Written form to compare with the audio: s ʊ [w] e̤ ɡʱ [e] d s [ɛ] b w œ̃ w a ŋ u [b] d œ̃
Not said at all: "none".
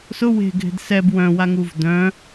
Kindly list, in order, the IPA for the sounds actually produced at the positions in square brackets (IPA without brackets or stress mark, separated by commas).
w, e̤, ɛ, v